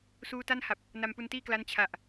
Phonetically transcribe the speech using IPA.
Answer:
s uː˦˥ t a˥˩ n h a˨˩ p̚ | n a˧ m p u˧ n t iː˥˩ k l a˦˥ n t͡ɕʰ a˨˩ ʔ

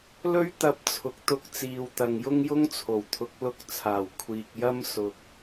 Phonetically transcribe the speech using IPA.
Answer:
l ɵ˥ ɥ t̪ ɐ˧ p̚ t͡sʰ ʊ˨ k̚ t̪ ʊ˧ k̚ t͡s iː˨ w t̪ ɐ˨ ŋ j ʊ˥ ŋ j ʊ˥ ŋ t͡sʰ o˨˩ w t̪ʰ ʊ˨˥ k̚ l ʊ˥ k̚ t͡sʰ aː˨˩ w kʷʰ iː˨ k̚ j ɐ˥ m s ʊ˧ k̚

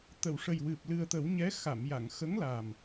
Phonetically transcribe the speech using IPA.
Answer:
t̪ ə˨˩˨ w ʂ ə˨˩ j w ɨ˨˩ p̚ l ɨ˨˩ ə̯ t̪ ə˨˩˦ w ɲ ɛ˧˥ x a˨˩˨ m j a˨˩˨ ŋ x ə˧˥ ŋ l a˨˩ m

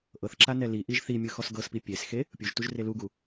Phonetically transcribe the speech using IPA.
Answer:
ʔ ɤ θ ǁ a n ɛ l i ʔ i ʒ θ i mʲ ɯ x ɔ s ɡ ɤ s p i pʲ e s x e | pʲ u ʒ t u ʒ r e l u ɡ u

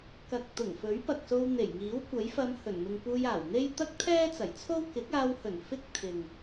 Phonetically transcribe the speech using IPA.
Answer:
k ɐ˨ k̚ t̪ ʊ˨˩ ŋ f ɵ˨˥ ɥ p ɐ˨ k̚ s o˧ w n̪ e˨˩ j ŋ iː˨˥ w kʷ ɐ˨˥ j f ɐ˧ m h ɵ˨˩ n m ɪ˨ ŋ p uː˧ j aː˨˩ w n̪ e˥ j t̪ ɐ˥ k̚ t̪ʰ ɛː˥ t͡s ɐ˨˩ j t͡sʰ o˥ w k ɪ˨˥ k̚ aː˧ w h ɵ˨˩ n f ɪ˥ k̚ t̪ʰ ɪ˨ ŋ

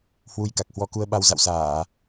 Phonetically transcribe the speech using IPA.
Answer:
h w u˧ j k a˨˩ k̚ h w ɔ˧ k u˧ ə̯ ɓ a˧ w z a̰˧˨ w s aː˧˩˨

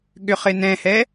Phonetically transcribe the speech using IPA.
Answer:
ɠ ʏ χ ɪ n ɛ̃ h ɛ

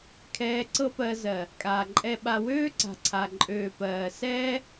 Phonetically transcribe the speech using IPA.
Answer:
kʰ ɛː˧ ǀ ɤ˦ p ɜ˧ z ɜ˨ | kʼ aː˨ ǃʼ ɛ˧ ɓ a˧ w øː˦ ǀ a̤˨ ǀʰ a˨ ǃʼ øː˨ p ɜː˨ s ɛː˦

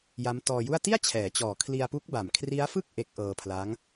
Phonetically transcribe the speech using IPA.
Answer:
j a˦˥ m t ɔː˧ j u˥˩ a̯ t i˥˩ a̯ t͡ɕʰ ɛː˩˦ t͡ɕ ɔː˨˩ kʰ l i˧ a̯ p u˦˥ k̚ b a˨˩ m kʰ r i˦˥ a̯ f ɯ˥˩ k̚ ʔ e˦˥ k̚ ʔ ɤː˧ pʰ l a˦˥ ŋ

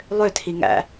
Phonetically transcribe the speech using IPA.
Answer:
lˠ ø tʰ i ŋ æ̰

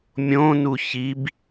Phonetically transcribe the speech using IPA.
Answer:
mʲ õ n u ç i b

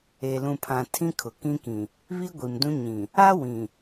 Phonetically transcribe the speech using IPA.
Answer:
e˨ l ũ˨ pʰ ã˨ tʰ ĩ˦ kʰ ʊ˨ k ĩ˦ k ĩ˨ | β i˦ ɡʷ i˨ m d ũ˦ ɲ ĩ˨ | a˦ w ĩ˨

